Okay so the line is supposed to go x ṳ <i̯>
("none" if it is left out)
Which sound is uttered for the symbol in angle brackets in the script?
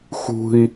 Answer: i̯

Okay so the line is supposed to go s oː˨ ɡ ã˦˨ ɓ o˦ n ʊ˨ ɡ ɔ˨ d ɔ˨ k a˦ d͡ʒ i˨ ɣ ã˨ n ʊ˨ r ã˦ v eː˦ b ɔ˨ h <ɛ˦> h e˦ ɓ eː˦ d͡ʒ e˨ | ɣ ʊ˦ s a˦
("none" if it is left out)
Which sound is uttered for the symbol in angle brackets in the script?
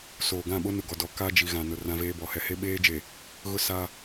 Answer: ɛ˨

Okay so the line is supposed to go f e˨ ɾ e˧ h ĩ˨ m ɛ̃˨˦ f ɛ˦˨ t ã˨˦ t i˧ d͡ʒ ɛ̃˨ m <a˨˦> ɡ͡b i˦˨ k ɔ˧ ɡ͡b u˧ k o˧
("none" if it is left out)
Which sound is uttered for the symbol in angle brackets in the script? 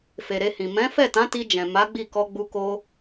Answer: a˨˦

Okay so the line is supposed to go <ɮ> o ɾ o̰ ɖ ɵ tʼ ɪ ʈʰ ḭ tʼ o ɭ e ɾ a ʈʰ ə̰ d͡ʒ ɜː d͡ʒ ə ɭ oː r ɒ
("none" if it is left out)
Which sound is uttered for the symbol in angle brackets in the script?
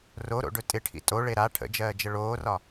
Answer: r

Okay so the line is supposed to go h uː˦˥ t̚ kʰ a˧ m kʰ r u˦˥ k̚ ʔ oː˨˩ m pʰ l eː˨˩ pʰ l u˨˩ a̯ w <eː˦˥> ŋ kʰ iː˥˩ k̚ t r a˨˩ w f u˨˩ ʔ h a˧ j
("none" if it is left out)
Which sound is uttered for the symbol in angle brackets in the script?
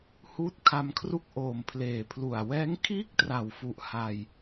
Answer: ɛː˦˥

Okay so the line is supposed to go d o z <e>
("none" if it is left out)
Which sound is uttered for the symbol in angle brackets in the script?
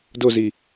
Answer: i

